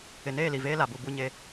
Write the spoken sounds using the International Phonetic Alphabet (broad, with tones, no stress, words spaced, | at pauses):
ɪ˨neː˦˨li˨ veː˦la˨bu˦˨ bu˦ɲe˦